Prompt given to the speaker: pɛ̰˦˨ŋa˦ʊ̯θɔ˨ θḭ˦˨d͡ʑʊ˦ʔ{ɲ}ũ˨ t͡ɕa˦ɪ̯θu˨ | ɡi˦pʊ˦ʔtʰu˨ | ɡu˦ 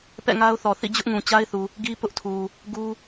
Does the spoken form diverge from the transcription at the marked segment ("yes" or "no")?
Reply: yes